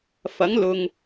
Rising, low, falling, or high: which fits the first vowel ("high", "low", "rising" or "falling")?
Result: rising